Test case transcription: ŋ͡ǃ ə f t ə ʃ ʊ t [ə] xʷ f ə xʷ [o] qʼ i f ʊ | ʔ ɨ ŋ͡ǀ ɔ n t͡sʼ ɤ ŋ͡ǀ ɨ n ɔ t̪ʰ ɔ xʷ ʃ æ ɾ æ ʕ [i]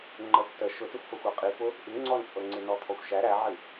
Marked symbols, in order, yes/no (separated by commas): yes, no, no